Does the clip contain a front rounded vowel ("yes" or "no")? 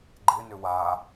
yes